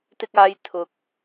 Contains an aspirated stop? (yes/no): yes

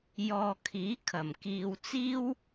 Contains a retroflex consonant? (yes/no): no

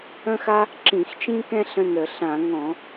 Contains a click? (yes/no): yes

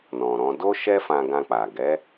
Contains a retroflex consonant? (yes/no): no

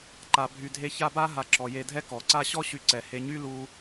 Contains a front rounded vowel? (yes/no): yes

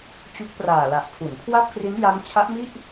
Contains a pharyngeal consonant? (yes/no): no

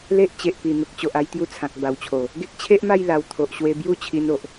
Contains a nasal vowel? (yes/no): yes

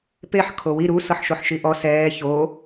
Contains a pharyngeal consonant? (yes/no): yes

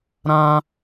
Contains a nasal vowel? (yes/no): yes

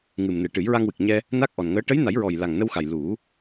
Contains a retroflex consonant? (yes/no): yes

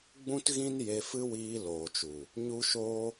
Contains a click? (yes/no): no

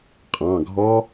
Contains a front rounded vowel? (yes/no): no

